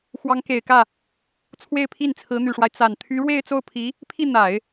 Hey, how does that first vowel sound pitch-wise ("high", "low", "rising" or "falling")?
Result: rising